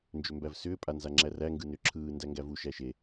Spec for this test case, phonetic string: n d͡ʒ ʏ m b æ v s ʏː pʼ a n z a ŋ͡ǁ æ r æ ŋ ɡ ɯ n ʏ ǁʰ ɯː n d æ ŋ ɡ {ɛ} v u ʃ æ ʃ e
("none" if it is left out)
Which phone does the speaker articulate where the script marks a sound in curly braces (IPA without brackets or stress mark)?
æ